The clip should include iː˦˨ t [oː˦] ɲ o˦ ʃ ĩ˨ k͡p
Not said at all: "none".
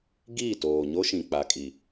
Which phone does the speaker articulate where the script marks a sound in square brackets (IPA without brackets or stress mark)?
oː˨